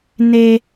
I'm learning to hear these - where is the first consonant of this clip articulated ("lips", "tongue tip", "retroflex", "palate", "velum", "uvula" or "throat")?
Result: tongue tip